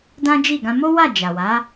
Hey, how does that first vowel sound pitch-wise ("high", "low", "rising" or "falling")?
high